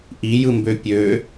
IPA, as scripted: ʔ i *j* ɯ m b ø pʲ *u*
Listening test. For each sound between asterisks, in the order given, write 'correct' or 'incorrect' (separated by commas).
correct, incorrect